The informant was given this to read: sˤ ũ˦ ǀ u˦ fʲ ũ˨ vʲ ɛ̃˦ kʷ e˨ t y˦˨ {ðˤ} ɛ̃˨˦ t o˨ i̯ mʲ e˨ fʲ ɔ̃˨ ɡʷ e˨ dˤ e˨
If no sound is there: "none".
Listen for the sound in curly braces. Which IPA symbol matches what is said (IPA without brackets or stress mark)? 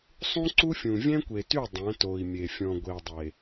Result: dˤ